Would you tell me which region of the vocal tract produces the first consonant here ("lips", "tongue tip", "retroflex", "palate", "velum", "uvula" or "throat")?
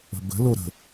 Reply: lips